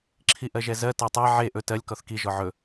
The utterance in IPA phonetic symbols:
ǁʰ i ʔ ɜ ʒ ɛ z ɜ t ɜ tˤ ɜ ʕ e ʔ ɵ t ɜ lʲ k ɔ θ k i ʒ ɔ ʕ ɵ

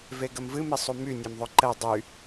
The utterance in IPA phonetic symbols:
v e ɡ ə m v ɨ m i sˤ u m y nʲ e m ðˤ ɵ ǃ ɛ dˤ y

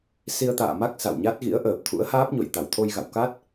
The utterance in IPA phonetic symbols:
s i˧ ə̯ t̪ a̰ː˧˨ m a˦˥ k̚ s a̰˧˨ w ɲ a˦˥ t̚ ɣ ḭ˧˥ ə̯ ʔ əː˨˩ p̚ t̪ʰ ṵ˧˥ ə̯ h aː˦˥ p̚ ɲ o̰˧˨ j t̪ a˧˩ w t̪ʰ o˧ j ɣ a̰˧˨ w k a˦˥ t̚

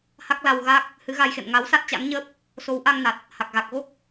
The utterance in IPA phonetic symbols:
h a˦˥ k̚ l a˧ w ɣ a˦˥ k̚ | h ɨ˨˦ ɣ a˧ j x ḛ˧˨ m ŋ a˨˦ w s a˦˥ t̚ t͡ɕ a̰˧˥ ŋ ɲ əː˦˥ p̚ | s o˨˦ w ʔ a˧ ŋ n a˨˩ t̚ | h a˨˩ k̚ ɣ a˨˩ k̚ ɣ o˦˥ k̚

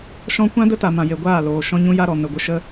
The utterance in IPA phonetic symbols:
ʃ ɔ̃˦ kʷ ã˦ d ə˦ t a˨ m ã˨ j e˨ ɡʷ aː˦˨ l oː˨ ʃ ɔ̃˦ ɲ ũ˦ j a˦ ɾ ɔ˨ n ə˨ ɡʷ ə˧ ʃ ə˦

